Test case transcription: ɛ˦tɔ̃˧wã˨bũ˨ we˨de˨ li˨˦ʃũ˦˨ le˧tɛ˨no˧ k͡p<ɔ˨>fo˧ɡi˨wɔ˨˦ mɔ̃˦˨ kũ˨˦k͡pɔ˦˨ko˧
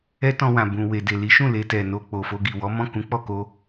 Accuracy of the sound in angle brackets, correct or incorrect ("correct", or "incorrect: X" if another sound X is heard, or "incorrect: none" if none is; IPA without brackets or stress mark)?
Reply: incorrect: o˨